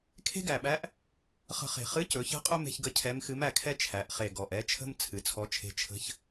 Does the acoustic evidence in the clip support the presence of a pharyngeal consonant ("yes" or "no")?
no